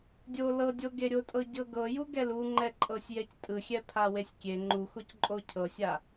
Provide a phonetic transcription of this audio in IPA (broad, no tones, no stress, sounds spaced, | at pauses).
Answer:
dʲ o l ɤ dʲ o ɡ e ɾʲ o tʼ ɤ ɟ ɤ ɡ ɤ j u ɡ ɛ l u ŋ͡ǃ ɛ ǃʼ ɤ sʲ j ɛ c tʼ ɯ xʲ ɛ pʰ a w e sʲ kʲ e ŋ͡ǃ u x o c ǃʼ o cʰ ɤ sʲ a